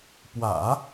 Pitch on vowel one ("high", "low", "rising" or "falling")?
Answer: low